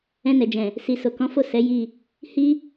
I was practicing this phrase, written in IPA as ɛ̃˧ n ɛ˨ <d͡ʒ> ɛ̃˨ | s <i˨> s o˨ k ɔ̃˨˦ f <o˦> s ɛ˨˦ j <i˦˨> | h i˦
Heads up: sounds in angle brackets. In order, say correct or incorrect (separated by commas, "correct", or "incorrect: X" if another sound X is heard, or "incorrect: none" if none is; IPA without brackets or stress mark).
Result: correct, correct, incorrect: o˦˨, correct